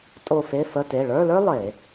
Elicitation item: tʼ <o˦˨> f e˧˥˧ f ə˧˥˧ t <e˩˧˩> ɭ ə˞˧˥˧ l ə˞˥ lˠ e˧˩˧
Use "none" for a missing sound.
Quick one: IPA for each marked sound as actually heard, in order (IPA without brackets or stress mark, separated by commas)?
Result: o˦˨, e˩˧˩